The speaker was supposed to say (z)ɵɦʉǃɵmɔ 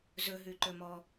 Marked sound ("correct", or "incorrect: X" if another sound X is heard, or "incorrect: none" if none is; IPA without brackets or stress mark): correct